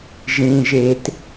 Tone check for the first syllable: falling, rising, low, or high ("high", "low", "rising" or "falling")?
low